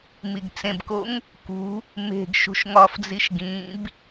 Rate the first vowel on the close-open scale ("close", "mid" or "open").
close